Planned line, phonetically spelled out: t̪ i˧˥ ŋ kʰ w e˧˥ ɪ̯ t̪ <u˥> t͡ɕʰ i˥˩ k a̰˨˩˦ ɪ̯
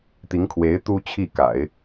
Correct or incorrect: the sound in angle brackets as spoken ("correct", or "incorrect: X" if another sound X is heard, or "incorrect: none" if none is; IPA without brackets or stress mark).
correct